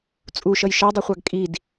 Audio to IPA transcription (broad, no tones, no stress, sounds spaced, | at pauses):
t͡sʼ u ʃ ʌ j ʃ ɑ dˤ ʌ χʷ ɑ ɡ kʼ i d